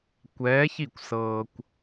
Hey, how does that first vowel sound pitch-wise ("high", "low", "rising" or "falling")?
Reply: rising